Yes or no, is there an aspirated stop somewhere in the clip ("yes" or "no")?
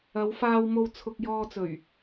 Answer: yes